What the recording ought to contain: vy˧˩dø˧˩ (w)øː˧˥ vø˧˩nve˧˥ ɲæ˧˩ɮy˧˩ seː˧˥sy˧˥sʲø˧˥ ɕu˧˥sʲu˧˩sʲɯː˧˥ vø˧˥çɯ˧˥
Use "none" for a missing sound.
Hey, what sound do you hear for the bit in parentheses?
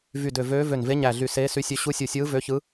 v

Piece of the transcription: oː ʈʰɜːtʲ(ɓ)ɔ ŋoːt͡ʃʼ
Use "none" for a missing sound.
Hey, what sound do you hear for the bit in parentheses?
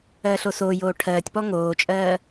p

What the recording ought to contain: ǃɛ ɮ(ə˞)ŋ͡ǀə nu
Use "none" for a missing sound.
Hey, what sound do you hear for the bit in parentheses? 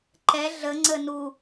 ə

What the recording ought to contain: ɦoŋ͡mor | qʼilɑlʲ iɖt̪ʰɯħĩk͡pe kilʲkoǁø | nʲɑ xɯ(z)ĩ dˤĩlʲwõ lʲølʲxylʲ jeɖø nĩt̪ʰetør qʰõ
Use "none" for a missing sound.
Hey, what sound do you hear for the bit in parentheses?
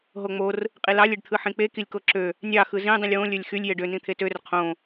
z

